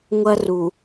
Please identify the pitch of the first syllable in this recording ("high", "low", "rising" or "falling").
high